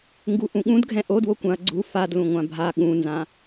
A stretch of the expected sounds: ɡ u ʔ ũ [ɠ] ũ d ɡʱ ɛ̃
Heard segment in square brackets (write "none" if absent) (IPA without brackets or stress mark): ɠ